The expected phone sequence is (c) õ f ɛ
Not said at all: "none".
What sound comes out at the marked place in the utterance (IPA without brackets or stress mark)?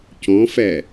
c